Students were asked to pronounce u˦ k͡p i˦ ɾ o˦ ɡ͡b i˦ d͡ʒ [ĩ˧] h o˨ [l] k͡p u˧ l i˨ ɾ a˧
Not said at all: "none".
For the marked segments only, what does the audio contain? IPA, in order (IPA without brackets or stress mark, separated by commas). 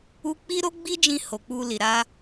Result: ĩ˧, none